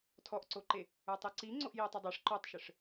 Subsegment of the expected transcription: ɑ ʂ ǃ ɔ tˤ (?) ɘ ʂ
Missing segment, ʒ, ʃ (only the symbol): ʃ